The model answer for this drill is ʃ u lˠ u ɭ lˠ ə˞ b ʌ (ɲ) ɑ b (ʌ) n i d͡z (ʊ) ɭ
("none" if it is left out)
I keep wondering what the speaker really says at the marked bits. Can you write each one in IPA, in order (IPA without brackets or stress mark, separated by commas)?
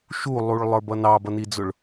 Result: n, ʌ, ʊ